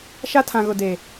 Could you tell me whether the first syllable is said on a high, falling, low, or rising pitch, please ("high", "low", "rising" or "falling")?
high